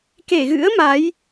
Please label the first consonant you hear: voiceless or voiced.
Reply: voiceless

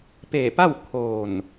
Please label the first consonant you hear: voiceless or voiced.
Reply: voiceless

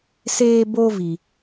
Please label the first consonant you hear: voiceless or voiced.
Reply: voiceless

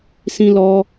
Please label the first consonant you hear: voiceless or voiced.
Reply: voiceless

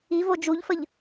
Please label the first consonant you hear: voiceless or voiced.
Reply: voiced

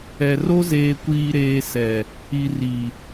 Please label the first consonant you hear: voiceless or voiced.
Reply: voiced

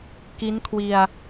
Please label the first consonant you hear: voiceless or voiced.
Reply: voiceless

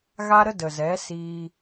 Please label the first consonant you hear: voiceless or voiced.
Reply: voiced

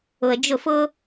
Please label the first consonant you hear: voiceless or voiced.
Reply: voiced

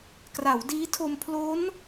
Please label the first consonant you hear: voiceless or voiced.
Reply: voiceless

